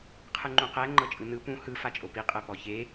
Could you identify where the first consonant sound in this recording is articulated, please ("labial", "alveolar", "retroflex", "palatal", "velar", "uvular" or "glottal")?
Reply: uvular